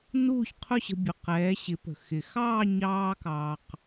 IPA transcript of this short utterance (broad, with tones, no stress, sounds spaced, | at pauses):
n uː˥˧ ç qʰ ʊ˥˧ ɕ ə̤˧ bʲ ʊ˩˧˩ q ɛː˩˧ ɕ ɪ˩˧ p ə̤˩ x ɪ˩ x ɑː˥˧ ɲ ɑː˧ k ɑː˩ q